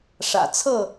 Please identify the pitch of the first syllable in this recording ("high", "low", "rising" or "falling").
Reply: low